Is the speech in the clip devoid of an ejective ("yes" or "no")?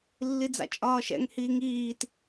no